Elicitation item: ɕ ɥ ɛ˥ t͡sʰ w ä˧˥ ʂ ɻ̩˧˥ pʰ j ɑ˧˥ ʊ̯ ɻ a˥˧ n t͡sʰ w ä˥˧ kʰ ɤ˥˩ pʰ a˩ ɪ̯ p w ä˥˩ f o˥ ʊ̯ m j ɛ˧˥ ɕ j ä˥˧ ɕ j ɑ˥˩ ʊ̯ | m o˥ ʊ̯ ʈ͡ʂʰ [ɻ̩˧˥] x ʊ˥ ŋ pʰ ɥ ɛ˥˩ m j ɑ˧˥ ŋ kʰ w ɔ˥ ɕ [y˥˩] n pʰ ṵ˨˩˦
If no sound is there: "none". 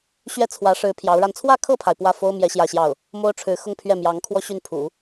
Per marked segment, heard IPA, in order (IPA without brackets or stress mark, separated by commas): ɻ̩˧˥, y˥˩